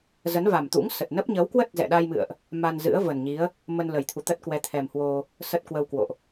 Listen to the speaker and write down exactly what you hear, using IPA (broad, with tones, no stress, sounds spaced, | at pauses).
z ə˨˦ n v a˨˩ m t̪ ṵ˧˥ ŋ s ə˨˩ t̚ n ə˦˥ p̚ ɲ ə˨˦ w k w ə˦˥ t̚ z ɛ̰˧˨ ɗ a˧ j m ɨ̰˧˨ ə̯ ʔ | m a˧ n z ɨ̰˧˥ ə̯ v ə˨˩ n ɲ i˨˦ ə̯ | m ə˧ n l ə˨˩ j t̪ʰ u˧˩ t̪ ə˦˥ t̚ k w ɛ˨˦ t̪ʰ ɛ˨˩ m h w o˧ | s ə˦˥ t̚ k w ə˧ w k w o̰˧˨ ʔ